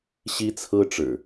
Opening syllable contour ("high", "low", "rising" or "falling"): high